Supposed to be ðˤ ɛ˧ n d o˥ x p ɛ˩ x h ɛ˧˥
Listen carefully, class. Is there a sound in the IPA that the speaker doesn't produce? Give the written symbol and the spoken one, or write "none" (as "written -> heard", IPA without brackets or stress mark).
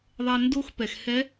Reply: none